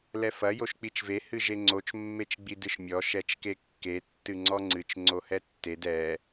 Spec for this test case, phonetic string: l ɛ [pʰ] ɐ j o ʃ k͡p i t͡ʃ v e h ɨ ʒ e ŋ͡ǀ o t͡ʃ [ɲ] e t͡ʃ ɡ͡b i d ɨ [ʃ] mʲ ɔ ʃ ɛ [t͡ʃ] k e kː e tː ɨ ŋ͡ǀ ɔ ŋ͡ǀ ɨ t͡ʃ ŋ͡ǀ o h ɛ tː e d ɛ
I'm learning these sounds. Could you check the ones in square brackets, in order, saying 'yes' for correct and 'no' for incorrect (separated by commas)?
no, no, yes, yes